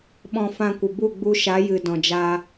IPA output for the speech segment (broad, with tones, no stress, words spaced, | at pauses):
ɓɔ̃˧ fã˧kʷə˨bu˦˨ ɡ͡bu˧ʃa˨˦ jɨ˨dɔ̃˨d͡ʒaː˧